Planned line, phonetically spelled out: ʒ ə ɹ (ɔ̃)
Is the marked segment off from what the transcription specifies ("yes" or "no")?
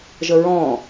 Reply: no